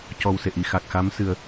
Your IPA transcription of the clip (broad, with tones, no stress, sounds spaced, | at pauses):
c ɔ˨˩ w s e˨˩ ʔ i˨˩˨ x a˨˩ k̚ x a˧˥ m s ɨ˨˩˦ ə̯